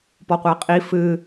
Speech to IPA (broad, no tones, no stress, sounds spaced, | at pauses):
p ɔ qʷ æ qʼ i f ɨ